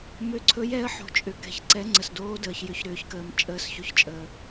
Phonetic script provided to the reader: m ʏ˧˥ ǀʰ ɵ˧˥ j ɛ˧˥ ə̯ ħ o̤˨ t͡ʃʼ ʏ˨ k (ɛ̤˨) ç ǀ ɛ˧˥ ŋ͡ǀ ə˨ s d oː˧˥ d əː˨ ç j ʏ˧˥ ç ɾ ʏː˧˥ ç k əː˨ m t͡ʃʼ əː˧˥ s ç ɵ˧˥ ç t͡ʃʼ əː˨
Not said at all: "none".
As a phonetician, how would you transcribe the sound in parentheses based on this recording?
ɛ̤˨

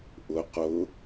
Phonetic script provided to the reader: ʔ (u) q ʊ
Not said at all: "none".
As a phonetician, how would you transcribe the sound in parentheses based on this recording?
ʊ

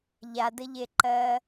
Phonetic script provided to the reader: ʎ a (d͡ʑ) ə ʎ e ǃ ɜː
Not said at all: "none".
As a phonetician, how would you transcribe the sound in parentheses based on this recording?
d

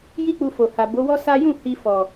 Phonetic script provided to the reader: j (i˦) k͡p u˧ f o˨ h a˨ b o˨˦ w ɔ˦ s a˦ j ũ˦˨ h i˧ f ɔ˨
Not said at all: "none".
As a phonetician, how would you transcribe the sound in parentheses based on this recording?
i˦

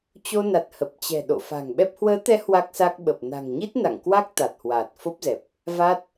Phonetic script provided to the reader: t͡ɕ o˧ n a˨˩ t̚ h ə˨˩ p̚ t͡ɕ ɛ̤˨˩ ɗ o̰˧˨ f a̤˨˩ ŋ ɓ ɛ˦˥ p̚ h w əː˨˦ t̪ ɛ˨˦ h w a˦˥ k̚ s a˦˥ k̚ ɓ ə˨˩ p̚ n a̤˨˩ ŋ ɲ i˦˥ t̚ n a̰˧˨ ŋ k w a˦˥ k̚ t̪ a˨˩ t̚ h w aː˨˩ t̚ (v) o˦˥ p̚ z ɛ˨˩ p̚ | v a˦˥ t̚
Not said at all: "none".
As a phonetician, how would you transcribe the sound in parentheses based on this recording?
f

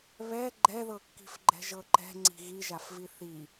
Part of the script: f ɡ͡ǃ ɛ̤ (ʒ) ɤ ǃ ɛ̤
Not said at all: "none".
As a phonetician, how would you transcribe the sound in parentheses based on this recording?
ʒ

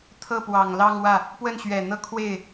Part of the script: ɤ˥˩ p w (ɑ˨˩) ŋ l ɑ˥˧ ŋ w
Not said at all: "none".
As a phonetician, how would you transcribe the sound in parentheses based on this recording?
ɑ˨˩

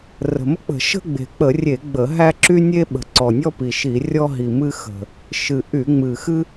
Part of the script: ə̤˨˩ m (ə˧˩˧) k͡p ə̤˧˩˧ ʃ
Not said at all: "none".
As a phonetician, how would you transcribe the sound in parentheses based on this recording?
ə˦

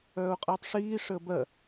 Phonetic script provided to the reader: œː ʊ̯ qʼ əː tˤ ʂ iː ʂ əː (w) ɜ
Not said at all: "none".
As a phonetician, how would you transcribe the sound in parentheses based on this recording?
b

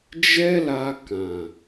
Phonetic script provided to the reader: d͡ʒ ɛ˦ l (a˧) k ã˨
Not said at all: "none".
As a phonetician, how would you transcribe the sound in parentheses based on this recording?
a˧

